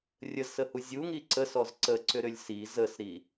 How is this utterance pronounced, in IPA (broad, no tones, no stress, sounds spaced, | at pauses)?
rʲ ə z s ə h u zʲ u ŋ i ǀ ə s ɔ z ǀ ə ǀ ʏ ɾ ʏ lʲ s i z ə s ɾ i